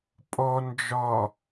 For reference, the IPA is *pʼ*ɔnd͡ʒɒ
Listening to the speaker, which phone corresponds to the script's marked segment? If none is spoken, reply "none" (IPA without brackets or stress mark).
pʼ